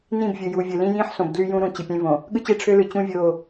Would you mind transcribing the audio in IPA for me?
n ĩ˦˨ b vʲ ɯ˨ j u˨ vʲ ɯ˨ l ĩ˦ j ĩː˦ ħ s õ˨ b d l y˦ j ũ˦ ɾ ũ˨ t͡ɕ i˨ pʲ ẽ˦ v õ˨ | ɠ ɯ˦ t͡ɕ e˦ ʈ͡ʂʰ ø˦ l ɯ˨ t͡ɕ ũ˦ vʲ oː˦˨

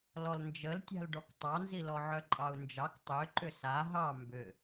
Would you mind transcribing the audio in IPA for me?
l ɔ l n d͡ʒ ə l tʲ a̤ l ɖ ɔ k tˤ ɑ n z i l ɔ ʕ œ ǃʼ ɑ u̯ n d͡ʒ ɑ k tˤ ø ǃ ʏ s a ɦ ɑ m b ʏ

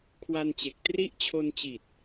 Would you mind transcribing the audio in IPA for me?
kʰ w a˧ n t͡ɕ e˨˩ k̚ t r i˥˩ ʔ t͡ɕʰ o˧ n t͡ɕ i˨˩ t̚

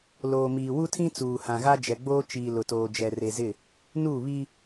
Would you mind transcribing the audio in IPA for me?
l oː˨ m iː˨ w u˦ tʰ ĩ˦ t͡s uː˨ h ã˨ ɣ a˦ d͡ʒ ɛ˨ ɡ͡b oː˦ t͡ʃ iː˨ l ʊ˨ t oː˨ d͡ʒ ɛ˨ r e˨ z ɪ˦˨ | n u˦˨ β i˦

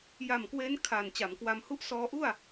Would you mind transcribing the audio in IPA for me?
j a˨˩ m k w eː˦˥ n kʰ aː˨˩ n t͡ɕ a˩˦ m k w a˧ m h u˥˩ ʔ s ɔː˧ ʔ u˥˩ a̯

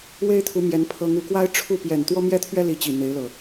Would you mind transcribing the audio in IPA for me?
w e˦ ɪ̯ t̪ʰ u˨˦ m j ɛ˨˦ n pʰ ɤ˨˦ ŋ u˨˩ k w a˦ ɪ̯ ʈ͡ʂʰ u˥˨ p j ɛ˨˩ n t̪ w ɔ˦ m j ɛ˦ t̪ʰ ɥ ɛ˦ l i˨˦ t͡ɕ i˨˩ n̪ e˨˦ ɪ̯ l ɤ˨˩

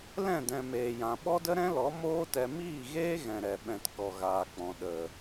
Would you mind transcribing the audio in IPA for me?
l ɛ̃˦˨ d ɛ̃˨ m eː˨ j ã˨ ɓ ɔ˦ d ə˦ ɾ ɛ̃˦ l ɔ˨˦ m oː˦ t ɛ˧ m iː˦˨ ɣ eː˦ ɣ ɛ̃˨ ɾ ɛ˨ ɓ ɛ̃˨ t k ɔ˨ ɣ aː˨ k͡p ɔ̃˨ ɗ ə˨

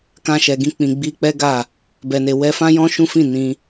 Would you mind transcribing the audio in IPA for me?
k ã˧ ʃ ɛ˨ ɡ ĩ˧ k͡p ĩ˨ ɡ͡b i˧ k͡p ɛ˦ ɡ a˦˨ | b ɛ˨ n e˨ w ɛ˧ f ã˦ j ɔ̃˦ ʃ ũ˦ f ĩ˦˨ n ĩ˧

